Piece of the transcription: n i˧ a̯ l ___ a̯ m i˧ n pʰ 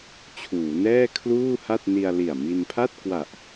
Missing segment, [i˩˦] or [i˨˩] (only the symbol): i˨˩